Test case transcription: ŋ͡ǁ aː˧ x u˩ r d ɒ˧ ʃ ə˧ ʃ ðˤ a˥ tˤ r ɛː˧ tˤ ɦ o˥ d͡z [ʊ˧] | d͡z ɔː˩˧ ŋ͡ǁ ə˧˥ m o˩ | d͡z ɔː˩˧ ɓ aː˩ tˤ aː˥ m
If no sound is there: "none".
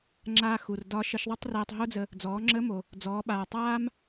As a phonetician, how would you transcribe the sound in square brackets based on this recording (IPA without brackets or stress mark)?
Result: ə˧